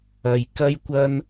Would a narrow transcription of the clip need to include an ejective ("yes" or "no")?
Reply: no